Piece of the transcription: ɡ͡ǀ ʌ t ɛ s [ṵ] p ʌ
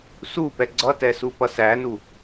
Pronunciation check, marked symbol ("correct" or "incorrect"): incorrect